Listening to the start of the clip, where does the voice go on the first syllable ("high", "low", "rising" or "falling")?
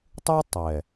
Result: high